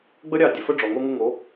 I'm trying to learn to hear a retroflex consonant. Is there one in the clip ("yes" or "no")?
yes